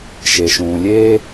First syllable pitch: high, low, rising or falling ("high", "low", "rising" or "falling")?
low